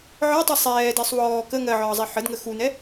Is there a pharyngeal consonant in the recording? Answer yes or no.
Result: yes